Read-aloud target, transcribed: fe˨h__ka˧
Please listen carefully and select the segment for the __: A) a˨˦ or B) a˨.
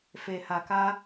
B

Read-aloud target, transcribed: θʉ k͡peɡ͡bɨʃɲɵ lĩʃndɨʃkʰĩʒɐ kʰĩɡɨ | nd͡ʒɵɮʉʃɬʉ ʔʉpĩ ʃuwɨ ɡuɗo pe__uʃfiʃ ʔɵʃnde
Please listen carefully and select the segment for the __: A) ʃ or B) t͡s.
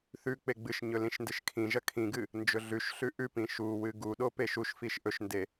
A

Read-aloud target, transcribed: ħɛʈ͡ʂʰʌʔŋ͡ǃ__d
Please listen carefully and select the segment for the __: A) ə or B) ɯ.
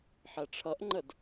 A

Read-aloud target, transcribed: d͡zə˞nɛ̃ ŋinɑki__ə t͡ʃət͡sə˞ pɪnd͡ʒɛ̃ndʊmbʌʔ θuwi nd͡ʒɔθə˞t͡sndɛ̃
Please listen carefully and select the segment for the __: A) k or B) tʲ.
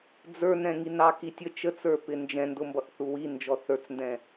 B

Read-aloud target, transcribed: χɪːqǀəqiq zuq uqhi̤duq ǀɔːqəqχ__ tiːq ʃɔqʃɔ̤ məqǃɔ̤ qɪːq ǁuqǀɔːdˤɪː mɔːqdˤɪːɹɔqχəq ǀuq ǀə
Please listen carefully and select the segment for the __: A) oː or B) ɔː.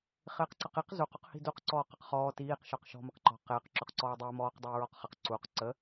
B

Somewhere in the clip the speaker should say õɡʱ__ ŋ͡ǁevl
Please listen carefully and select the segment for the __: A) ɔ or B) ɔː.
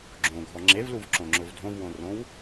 A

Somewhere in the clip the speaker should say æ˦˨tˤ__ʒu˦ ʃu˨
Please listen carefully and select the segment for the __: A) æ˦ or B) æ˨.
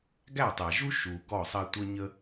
B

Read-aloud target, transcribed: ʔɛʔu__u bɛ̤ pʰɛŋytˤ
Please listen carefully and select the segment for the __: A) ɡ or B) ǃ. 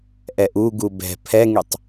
A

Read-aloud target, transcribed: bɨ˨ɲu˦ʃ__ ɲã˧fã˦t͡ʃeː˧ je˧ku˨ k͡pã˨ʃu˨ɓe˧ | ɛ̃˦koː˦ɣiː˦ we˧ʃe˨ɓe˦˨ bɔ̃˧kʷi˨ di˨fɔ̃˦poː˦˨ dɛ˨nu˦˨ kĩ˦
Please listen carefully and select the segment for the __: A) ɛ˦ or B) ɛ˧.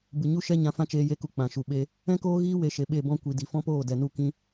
A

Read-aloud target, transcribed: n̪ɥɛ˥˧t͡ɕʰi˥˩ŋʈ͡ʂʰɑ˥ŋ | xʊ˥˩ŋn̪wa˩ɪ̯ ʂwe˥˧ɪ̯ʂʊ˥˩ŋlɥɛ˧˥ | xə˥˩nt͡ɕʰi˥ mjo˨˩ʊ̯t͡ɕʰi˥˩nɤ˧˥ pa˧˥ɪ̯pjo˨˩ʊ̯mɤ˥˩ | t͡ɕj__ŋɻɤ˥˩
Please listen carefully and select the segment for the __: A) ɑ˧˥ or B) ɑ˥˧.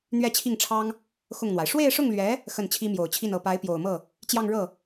B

